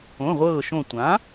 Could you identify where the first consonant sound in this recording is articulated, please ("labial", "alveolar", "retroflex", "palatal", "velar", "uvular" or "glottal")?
uvular